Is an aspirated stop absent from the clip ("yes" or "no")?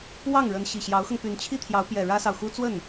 no